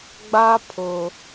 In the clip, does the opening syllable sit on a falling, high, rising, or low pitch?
high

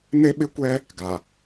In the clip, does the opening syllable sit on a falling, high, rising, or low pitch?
high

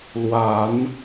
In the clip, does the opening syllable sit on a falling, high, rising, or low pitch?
rising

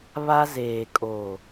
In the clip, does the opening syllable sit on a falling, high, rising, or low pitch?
high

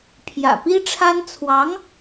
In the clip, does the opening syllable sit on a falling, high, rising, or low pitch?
low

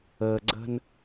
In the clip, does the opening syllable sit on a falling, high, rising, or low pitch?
low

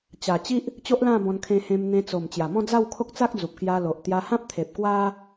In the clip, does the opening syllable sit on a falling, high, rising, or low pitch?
low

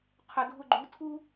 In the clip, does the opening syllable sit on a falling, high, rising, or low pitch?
low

